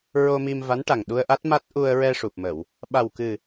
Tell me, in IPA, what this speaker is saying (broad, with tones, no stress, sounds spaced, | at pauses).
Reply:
ɹ o˧ m i˧ m v a˧˥ n ʈ a˨˩ ŋ ɗ u˧ ə̯ ʔ a˦˥ t̚ m a˦˥ t̚ ʔ u˧ ə̯ ɹ ɛ˧ ʂ u˨˩ p̚ m ə˨˩˨ w | ɓ a˨˩ w k ɨ˨˩